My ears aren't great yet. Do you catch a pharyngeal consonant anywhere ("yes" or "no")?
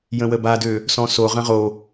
no